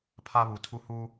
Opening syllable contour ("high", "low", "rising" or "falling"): high